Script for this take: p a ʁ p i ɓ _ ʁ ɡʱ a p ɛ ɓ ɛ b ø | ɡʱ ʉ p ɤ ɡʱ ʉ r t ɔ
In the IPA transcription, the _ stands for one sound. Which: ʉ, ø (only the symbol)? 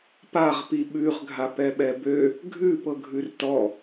ʉ